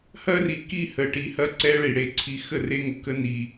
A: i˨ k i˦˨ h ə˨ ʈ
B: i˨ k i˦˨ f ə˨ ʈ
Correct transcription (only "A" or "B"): A